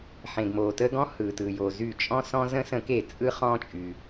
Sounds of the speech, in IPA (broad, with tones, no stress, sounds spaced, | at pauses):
ħ ẽ˩ ɡ m oː˩ t əː˦ ɡ ɔ̃˦ h ɯː˩ t ɯ˩ j o˩ z y˧˩˧ t͡ʃʼ ɔ̃˦ s ɔ̃˦ z ə̃˦ s ə̃˧˩˧ k e˧˩˧ t͡sʼ ɯ˦ χ ɔ̃˦ t͡ʃʼ y˩